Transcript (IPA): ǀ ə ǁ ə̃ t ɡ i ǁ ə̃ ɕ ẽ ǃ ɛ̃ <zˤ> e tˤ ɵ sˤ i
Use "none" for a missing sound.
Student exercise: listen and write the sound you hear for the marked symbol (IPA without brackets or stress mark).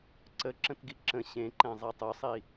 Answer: zˤ